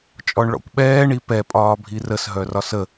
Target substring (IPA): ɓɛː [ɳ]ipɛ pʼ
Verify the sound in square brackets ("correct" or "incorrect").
correct